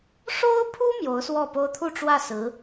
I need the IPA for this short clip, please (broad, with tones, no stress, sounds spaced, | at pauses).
ʂ o˥ ʊ̯ pʰ u˥ m j o˧˥ ʊ̯ s w ɔ˥˩ p o˥ ʊ̯ t̪ʰ u˥˧ ʈ͡ʂ w ä˥˩ s ɹ̩˧˥